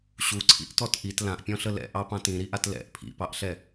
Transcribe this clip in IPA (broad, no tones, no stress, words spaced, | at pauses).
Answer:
ɕuǀʰḭʔtɔt ʔit lãʔpʲɔ̃ɬə lɛ̰ʔɑpɑ̃t ĩɾiʔat lɛ̰ʔ pʰḭpɑʔɬɛ